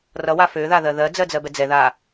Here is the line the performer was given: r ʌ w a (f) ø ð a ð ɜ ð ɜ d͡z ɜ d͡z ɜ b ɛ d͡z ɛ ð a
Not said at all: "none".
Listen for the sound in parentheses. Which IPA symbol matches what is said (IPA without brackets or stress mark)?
f